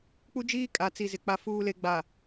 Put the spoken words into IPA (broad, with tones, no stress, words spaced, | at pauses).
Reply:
k͡pu˦d͡ʒiː˦kʼa˨˦t͡si˨ zɪ˨ k͡pa˨fuː˨le˨ɡ͡ba˨